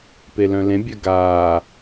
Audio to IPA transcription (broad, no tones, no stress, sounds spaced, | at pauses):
p e l œ̃ l ẽ bʲ œ ɡ aː